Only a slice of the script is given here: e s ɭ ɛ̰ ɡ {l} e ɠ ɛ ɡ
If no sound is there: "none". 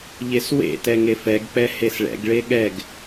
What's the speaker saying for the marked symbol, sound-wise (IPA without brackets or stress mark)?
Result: ɭ